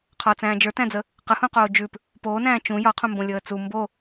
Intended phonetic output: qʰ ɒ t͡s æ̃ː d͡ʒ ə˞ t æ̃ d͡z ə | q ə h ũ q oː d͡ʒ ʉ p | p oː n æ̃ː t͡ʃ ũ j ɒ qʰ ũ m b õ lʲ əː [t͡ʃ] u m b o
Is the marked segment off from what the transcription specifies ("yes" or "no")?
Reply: yes